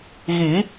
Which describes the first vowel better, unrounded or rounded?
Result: unrounded